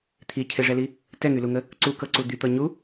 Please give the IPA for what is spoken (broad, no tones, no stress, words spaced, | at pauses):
t̪ʰicʰeʐɛli | tɛŋyluŋə | ǀukɤǀu d̪yt̪ɤ ɲu